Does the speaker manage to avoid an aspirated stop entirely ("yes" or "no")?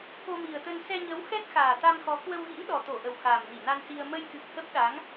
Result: yes